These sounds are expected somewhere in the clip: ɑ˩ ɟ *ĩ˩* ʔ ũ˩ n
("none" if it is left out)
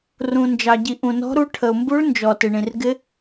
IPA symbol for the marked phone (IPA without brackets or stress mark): i˩